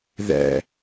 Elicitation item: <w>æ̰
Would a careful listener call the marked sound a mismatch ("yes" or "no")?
yes